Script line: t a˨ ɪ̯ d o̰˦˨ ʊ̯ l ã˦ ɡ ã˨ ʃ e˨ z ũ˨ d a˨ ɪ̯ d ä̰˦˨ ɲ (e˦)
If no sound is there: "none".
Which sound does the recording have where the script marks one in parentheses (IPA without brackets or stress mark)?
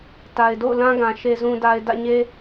e˦